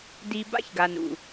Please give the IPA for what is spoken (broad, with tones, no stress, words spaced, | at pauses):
di˧ ba̰˦çɡa˨n ṵ˨